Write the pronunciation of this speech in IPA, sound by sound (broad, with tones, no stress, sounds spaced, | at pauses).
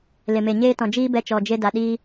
l e˨ m e˨ ɲ eː˦ t ɔ̃˨ d͡ʒ iː˦ b ɛ˧ t͡ʃ ɔ˨ d͡ʒ e˧ d a˨ ɗ iː˧